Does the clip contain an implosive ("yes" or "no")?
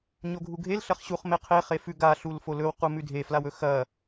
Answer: no